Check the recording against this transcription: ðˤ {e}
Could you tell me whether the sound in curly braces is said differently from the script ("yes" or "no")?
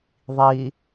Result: yes